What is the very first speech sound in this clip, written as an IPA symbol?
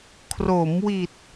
kʰ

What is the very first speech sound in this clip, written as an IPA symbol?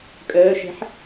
kʼ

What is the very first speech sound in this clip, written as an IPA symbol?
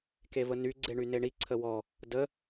k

